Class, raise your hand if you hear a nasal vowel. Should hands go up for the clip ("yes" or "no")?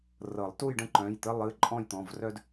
yes